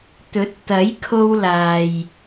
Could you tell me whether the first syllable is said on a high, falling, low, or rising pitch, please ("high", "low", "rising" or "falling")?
rising